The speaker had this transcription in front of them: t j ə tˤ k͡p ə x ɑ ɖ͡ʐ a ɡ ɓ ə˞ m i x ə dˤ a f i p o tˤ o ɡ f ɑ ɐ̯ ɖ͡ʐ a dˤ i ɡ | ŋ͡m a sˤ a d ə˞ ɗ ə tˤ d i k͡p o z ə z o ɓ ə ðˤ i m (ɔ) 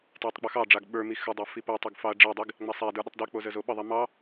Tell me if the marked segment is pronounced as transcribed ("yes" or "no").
no